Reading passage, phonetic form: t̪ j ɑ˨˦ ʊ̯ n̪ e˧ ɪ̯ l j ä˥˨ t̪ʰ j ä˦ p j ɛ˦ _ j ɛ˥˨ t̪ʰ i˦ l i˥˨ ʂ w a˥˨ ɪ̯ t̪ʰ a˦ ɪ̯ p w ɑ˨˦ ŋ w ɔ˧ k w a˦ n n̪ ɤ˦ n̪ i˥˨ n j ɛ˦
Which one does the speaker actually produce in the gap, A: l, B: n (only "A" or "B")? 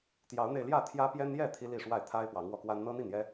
B